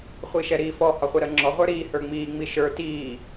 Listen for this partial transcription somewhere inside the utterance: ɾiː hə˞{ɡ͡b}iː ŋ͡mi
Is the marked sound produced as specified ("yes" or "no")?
no